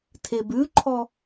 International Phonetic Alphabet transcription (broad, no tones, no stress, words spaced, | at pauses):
tʰebʉǃʰɔ